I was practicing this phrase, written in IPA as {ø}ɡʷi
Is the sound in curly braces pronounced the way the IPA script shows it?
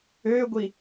yes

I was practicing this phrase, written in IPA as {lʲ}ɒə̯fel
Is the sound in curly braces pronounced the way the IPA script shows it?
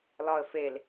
no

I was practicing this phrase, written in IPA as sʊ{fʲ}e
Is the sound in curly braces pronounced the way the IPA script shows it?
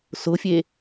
yes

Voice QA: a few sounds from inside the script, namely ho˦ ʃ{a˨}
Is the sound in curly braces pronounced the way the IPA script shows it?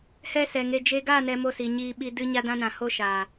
yes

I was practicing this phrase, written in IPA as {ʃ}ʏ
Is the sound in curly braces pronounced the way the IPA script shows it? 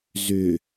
no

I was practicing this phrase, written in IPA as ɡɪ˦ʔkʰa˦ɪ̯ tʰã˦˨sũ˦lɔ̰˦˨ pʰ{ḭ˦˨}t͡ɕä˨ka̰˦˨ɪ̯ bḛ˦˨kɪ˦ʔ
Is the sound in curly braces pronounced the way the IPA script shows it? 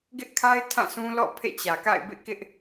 no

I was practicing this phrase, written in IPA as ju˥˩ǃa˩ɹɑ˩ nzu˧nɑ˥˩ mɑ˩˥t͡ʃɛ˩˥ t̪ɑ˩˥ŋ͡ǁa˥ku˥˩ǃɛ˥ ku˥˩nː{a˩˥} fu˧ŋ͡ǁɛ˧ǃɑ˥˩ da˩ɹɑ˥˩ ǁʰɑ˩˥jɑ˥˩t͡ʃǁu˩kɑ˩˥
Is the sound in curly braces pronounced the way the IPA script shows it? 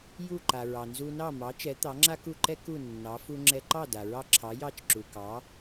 no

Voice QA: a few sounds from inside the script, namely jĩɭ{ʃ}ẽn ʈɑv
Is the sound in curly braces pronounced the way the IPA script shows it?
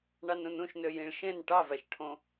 yes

